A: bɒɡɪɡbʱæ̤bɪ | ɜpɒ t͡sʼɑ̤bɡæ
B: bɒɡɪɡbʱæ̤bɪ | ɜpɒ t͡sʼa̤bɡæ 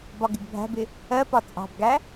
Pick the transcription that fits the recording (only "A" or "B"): A